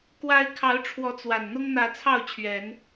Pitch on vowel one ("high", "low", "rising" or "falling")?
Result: high